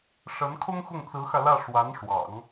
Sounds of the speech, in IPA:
ʂ ə˧˥ n kʰ ʊ˥ ŋ x ʊ˥˩ ŋ t͡s ɹ̩˧˥ x ä˧ l ä˥˩ ʂ w a˧˥ n ʂ w ɑ̰˨˩˦ ŋ

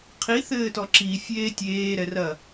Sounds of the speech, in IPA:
qʰ i θ ɘː t ɔ ǁ i fʲ eː tʲ eː ɾ ɛ r ɐ

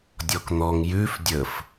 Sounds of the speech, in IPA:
dʲ ɔ k n̪ ɔ ŋ j ʉ f dʲ ə f

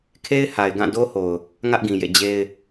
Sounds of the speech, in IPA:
kʰ e˦ ɪ̯ h a˨ ɪ̯ ɡ ã˦˨ d o˦ h o˨ ʊ̯ | ŋ ä˦ ʔ ɡ ĩ˨ j ḛ˦˨ d͡ʑ e˦ ɪ̯

